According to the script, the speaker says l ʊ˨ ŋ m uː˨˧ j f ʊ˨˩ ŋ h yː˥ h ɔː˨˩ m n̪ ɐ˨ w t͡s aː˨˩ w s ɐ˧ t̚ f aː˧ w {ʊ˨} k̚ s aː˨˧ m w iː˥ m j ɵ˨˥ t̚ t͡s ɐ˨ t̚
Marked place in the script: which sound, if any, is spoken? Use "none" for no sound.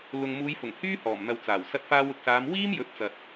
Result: ʊ˨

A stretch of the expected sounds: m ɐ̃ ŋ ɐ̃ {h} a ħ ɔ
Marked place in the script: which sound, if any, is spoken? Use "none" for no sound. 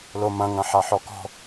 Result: ħ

